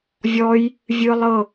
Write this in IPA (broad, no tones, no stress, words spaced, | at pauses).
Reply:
vʲɔj | vʲɯ lˠɤ